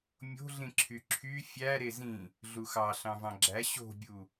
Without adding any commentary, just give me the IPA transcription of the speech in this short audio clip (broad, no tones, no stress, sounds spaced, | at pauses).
mʲ o̤ ɮ ĩ ǁʰ y ǁʰ y fʲ æ ɾ e z ĩ | ɮ u x ɑ ɬ ɑ̃ v ɑ̃ ɡ͡ǁ æ ɕ o̤ bʲ u